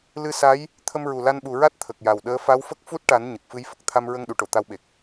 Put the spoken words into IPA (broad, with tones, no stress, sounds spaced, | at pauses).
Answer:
l ɨ˧ s a˧˥ j | t̪ʰ ə˧ m ɹ u˨˩ l a˧ n ɓ u˨˩ ɹ a˦˥ t̚ t̪ʰ ə˨˩ k̚ j a˨˩ w ɗ əː˧˥ f a˧˥ w f ə˦˥ k̚ f u˦˥ t̚ ʈ a˨˩˦ n ɲ ə˨˩ k̚ f ɨ˧˥ j f ə˨˩ k̚ t̪ʰ a˧ m ɹ ə˧ ŋ ɗ u˨˩˨ ʈ o˨˩˨ t̪ a˧˥ w ɓ e˨˩ k̚